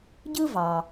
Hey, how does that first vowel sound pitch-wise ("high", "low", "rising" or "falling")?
high